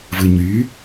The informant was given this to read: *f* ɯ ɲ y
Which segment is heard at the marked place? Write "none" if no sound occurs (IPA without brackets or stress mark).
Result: v